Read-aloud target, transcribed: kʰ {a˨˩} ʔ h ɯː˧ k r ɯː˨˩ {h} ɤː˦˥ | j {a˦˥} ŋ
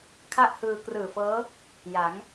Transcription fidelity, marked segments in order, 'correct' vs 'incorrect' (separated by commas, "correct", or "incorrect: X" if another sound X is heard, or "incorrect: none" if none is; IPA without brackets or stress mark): incorrect: a˥˩, incorrect: f, incorrect: a˩˦